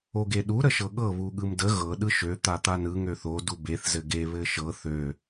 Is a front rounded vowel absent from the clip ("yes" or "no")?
no